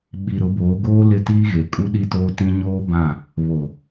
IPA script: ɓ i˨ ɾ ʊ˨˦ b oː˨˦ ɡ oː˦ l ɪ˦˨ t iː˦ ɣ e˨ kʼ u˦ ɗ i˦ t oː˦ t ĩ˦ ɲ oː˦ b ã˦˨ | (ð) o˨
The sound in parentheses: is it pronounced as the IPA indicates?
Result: no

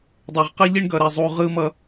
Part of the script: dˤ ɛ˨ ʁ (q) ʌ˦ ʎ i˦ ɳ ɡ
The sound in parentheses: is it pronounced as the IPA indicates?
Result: yes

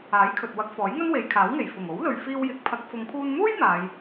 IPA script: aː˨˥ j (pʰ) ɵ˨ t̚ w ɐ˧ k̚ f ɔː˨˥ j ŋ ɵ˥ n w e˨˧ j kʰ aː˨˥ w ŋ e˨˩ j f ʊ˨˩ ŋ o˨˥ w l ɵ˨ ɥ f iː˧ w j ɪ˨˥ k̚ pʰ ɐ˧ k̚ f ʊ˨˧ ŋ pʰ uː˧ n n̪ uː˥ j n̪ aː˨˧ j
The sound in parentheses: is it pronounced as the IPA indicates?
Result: no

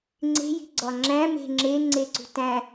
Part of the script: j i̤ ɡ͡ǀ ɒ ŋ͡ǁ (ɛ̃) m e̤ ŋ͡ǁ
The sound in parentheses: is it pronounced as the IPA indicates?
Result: no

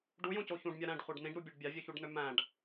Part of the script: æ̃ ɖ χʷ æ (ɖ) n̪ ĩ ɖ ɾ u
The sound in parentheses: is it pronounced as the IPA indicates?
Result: yes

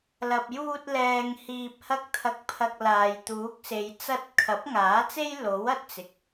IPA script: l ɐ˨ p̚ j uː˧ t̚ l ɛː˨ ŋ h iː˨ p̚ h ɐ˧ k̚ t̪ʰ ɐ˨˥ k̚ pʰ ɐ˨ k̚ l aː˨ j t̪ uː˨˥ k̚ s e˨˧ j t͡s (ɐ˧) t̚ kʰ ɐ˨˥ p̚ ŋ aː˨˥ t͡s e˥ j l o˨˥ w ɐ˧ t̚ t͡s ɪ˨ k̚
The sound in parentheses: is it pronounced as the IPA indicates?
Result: yes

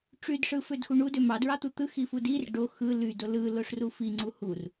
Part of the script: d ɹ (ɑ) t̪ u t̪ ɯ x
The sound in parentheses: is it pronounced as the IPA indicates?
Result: yes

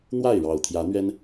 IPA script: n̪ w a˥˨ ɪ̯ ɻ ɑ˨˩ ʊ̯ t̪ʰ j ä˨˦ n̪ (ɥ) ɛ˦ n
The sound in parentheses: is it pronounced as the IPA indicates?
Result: yes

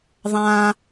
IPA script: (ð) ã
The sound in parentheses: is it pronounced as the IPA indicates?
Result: no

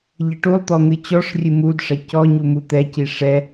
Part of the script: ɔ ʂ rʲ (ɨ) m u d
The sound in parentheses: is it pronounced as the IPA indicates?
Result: yes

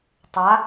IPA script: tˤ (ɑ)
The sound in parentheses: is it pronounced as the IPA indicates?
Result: no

